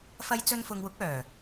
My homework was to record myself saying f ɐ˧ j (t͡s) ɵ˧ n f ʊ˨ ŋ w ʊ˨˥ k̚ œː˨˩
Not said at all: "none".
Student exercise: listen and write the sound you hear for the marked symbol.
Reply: t͡s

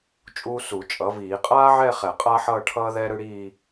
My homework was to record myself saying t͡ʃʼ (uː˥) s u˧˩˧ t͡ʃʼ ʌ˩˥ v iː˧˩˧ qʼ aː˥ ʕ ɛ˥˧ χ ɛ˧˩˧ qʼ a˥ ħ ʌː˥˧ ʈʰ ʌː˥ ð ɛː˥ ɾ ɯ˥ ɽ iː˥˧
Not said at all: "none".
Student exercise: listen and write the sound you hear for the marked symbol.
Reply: uː˥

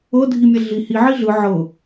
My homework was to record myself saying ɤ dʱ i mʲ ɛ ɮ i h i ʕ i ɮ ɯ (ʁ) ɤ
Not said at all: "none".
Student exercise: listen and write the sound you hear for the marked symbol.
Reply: ʕ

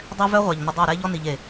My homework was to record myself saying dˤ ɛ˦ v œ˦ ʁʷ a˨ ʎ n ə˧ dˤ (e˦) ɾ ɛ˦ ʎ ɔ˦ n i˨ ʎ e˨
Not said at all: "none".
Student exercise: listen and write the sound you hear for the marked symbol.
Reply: e˦˨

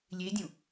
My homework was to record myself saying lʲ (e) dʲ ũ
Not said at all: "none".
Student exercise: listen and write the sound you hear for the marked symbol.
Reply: e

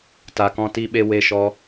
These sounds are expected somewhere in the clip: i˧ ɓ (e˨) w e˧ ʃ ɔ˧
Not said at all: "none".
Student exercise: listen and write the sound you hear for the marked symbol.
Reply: e˧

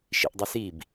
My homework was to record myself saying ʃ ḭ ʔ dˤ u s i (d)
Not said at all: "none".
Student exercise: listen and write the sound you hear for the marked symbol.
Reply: b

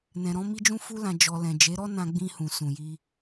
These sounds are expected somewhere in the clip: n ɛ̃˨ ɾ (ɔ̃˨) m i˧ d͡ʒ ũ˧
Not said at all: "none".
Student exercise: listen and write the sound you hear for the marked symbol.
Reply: ɔ̃˨˦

